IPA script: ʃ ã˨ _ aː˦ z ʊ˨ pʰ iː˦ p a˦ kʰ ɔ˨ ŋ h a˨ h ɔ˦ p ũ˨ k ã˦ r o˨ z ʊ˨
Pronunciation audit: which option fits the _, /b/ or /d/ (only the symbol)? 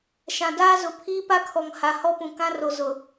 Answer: d